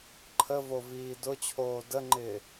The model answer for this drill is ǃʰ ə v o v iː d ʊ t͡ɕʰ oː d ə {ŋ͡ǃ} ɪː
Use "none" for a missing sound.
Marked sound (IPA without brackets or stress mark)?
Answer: ŋ͡ǃ